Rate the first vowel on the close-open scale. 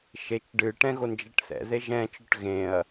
mid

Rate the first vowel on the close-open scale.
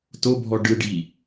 mid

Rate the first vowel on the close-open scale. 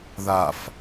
open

